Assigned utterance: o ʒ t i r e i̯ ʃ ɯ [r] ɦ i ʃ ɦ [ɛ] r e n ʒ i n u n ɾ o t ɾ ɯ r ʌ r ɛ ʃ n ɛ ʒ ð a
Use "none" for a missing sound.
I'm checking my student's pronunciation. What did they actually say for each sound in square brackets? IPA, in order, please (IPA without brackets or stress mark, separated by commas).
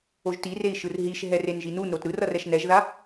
r, ɛ